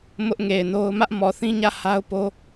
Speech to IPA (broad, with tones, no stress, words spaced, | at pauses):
mʊ˦ʔŋe˨ɪ̯no˦ʊ̯ mä˦ʔmɔ˨θĩ˦ɲä˦˨ ha˦ʊ̯po˦